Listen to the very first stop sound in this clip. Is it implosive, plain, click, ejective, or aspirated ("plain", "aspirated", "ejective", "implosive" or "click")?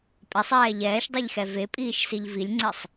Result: ejective